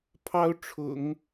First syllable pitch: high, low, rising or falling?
high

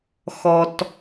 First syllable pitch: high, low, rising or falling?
low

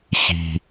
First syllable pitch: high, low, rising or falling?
low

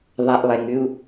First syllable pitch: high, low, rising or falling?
low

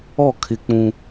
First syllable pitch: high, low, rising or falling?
falling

